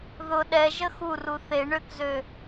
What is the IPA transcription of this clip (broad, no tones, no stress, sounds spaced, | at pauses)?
ð ʊ ɗ ɛ ʒ ə x u r u θ e ɳ ø k z ø